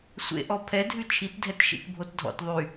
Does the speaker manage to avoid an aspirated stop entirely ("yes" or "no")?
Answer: no